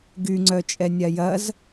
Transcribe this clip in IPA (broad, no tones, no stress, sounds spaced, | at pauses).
ɡ y ŋ͡ǀ œ t͡ʃʼ ɛ nʲ a j ɐ z